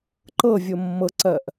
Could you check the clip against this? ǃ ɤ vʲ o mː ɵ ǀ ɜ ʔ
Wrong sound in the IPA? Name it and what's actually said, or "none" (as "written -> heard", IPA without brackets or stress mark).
ɵ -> ɤ